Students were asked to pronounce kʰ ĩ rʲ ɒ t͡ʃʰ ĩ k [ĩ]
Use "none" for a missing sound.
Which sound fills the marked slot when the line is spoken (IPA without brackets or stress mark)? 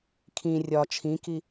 i